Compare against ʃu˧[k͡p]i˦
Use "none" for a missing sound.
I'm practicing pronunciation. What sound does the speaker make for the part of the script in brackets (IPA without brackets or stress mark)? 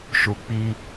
k͡p